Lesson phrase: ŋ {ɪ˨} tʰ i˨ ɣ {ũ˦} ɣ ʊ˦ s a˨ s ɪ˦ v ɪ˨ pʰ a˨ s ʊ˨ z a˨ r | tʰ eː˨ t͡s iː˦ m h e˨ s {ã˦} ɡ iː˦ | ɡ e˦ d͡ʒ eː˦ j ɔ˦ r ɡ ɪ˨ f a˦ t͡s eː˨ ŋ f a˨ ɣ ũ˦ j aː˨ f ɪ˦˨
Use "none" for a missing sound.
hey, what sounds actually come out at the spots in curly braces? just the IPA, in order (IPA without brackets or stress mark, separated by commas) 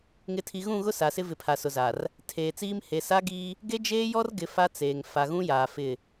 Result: ɪ˨, ũ˦˨, a˦